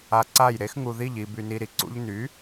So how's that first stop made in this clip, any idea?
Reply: click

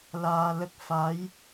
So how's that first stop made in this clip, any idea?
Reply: plain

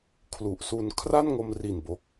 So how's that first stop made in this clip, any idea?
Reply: aspirated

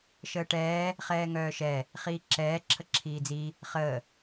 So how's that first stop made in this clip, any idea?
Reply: plain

